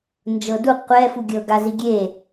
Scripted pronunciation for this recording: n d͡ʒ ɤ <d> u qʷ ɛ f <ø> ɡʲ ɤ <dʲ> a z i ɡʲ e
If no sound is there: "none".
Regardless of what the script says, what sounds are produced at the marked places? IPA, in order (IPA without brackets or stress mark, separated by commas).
d, u, ɡ